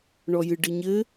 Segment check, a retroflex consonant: present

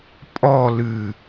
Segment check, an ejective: present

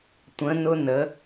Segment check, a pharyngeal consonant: absent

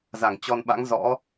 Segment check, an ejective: absent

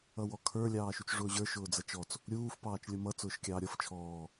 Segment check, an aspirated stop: present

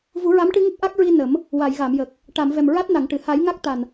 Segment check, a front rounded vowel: absent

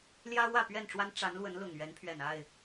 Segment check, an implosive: absent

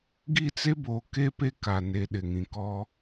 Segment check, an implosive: present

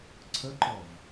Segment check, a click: present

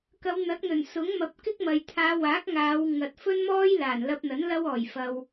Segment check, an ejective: absent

